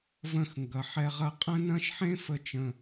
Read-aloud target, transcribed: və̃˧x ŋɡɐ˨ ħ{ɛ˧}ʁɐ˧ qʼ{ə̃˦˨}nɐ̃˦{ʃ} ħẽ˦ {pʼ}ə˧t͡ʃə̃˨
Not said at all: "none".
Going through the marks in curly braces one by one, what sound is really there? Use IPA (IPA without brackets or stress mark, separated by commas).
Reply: ɛ˧, ə̃˦, ʃ, f